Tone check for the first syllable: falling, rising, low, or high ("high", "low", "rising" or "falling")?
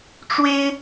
high